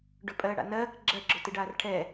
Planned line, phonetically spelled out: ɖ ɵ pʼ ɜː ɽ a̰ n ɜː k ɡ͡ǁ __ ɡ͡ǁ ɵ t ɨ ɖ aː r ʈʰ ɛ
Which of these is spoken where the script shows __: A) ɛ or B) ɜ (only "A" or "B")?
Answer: B